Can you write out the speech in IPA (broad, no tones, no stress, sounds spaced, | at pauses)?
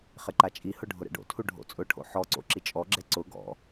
χ ɪ ǃ a t͡ʃʼ i h ʊ ɖʱ ʊ ɾ ɛ̰ ɖ o̰ tʰ u ɖʱ o̰ t͡sʼ ʊ ʈʰ o̰ ħ ɔ ǀ o̰ ǁ i t͡ʃʼ ɔ ɡ͡ǁ ɛ ǀ ʊ ɡ ɔ̰